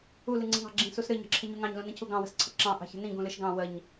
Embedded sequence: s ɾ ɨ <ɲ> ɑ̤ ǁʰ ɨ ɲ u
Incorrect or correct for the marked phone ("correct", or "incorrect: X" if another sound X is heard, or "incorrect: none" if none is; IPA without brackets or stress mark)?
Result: correct